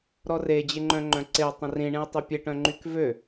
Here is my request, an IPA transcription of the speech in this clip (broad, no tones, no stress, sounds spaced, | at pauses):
ɾ ɔ r e d͡ʑ ɪ ŋ͡ǃ œ̃ ŋ͡ǃ œ̃ ǀ ɪ u̯ tˤ ə̃ r ĩ ɳ ĩ u̯ tˤ i pʲ e ʈ œ̃ ŋ͡ǃ y k v ø